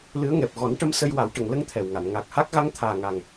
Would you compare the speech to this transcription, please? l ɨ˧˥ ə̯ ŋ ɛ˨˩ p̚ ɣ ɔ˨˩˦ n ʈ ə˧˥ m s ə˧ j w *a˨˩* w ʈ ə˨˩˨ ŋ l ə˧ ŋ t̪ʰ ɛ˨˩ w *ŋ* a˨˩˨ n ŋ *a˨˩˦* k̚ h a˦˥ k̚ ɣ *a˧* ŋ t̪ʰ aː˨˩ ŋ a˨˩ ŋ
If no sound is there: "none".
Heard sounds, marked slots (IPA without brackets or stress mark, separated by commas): a˨˩˦, ŋ, a˨˩, a˧˥